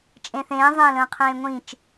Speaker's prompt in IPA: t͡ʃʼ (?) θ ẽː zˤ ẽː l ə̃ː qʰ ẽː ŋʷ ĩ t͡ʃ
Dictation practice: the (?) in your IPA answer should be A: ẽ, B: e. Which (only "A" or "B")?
A